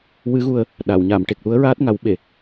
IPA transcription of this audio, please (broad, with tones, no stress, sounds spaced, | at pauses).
w ɨ˧˥ ɣ u˧ ə̯ | ɗ a˨˩˨ w ɲ a˨˩˨ m ʈ e˨˩ k̚ l u˧˥ ə̯ ɹ aː˦˥ t̚ ŋ a˨˩˦ w ɓ e˨˩˨